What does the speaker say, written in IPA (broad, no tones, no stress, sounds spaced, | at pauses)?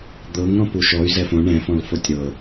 d̪ ɤ ŋ ɾ ɔ̃ p u ʃ ɔ y̯ z ɛ f õ ɳ ɛ̃ f ɔ̃ l f o tʲ ɾ ɤ